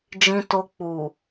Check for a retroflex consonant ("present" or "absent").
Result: absent